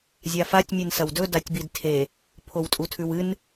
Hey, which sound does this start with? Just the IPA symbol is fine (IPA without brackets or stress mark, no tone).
zʲ